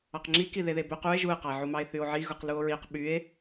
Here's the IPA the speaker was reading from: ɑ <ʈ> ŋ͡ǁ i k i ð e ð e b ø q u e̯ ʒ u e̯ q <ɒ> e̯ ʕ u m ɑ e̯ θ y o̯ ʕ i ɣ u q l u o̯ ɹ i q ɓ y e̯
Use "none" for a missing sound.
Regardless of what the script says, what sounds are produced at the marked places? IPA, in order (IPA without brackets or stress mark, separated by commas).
q, ɑ